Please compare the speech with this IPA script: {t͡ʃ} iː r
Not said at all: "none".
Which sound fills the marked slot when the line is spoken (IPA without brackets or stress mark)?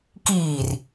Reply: k